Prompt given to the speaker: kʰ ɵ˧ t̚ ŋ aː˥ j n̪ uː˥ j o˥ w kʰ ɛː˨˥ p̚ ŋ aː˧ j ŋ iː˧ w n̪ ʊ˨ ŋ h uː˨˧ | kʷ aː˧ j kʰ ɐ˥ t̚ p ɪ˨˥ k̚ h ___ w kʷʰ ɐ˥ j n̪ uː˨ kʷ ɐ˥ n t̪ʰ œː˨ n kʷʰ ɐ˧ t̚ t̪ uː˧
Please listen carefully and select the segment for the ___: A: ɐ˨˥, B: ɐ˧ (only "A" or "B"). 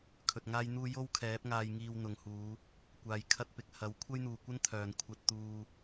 A